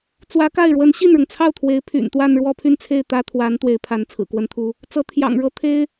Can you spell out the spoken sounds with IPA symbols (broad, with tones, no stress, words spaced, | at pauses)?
t͡swä˧˥ka˥˩ɪ̯ɻwə˧˥n ɕi˥˩nɻʊ˩ŋt͡sʰɑ˥˩ʊ̯t̪ʰwe˧˥ɪ̯ pʰy̰˨˩nt̪wa˥˧n ɻwɔ˥˧pʰy˥˧nt͡sʰe˥˩ɪ̯ t̪ä˥t̪ʰwa˧˥n t̪we˧˥ɪ̯pʰa˧˥n t͡sʰɹ̩˨˩kwə˥nt̪ʰu˥ | t͡sɤ˧˥t̪ʰjɑ̰˨˩ŋɻɤ˥ t̪ʰe˥ɪ̯